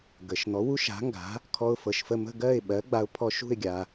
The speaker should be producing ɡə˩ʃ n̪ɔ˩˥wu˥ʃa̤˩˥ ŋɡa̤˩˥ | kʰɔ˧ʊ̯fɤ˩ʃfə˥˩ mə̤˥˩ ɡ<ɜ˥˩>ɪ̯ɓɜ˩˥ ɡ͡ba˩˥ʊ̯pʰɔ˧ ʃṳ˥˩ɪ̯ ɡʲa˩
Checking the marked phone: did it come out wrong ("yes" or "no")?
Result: no